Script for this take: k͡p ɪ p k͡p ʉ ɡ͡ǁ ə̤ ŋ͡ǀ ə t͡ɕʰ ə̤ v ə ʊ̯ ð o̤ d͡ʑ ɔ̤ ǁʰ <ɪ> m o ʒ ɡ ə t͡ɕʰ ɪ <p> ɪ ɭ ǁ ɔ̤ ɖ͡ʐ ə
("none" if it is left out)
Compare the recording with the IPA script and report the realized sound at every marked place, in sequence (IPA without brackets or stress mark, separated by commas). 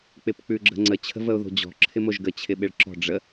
ɪ, ɓ